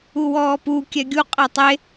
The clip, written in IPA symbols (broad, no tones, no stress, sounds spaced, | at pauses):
u w ɔː p u kʲ ɛ ɡʲ u qʼ ɛ tˤ e